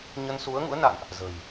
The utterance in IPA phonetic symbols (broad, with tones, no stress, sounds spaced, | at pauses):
ɲ ə˧ n s u˨˦ ə̯ ŋ ṵ˧˥ ə̯ n a̰˧˨ n ʔ | z ə̤˨˩ j